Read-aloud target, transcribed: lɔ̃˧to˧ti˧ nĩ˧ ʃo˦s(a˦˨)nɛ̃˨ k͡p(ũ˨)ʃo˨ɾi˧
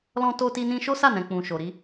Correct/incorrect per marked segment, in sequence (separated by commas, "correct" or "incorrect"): correct, correct